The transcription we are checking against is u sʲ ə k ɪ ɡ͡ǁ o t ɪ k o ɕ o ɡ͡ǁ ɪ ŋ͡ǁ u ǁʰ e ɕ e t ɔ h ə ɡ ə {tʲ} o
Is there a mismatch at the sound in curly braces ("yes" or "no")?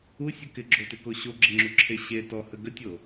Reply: no